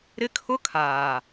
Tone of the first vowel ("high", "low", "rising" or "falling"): high